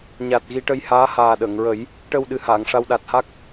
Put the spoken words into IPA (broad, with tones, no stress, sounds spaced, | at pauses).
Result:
ɲ a˨˩ t̚ ɣ i˧ ʈ ə˧ j h aː˧˥ h aː˨˩ ɗ əː˨˩˨ ŋ ɹ ə˨˩˦ j | ʈ ə˧ w ɗ ɨ˨˩ h aː˨˩˨ ŋ ʂ a˧ w ɗ a˨˩ t̚ h a˦˥ k̚